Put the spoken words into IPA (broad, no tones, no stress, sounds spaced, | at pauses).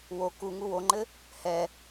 w o k u ŋ u w o ŋ͡ǃ ɘ | h ɛ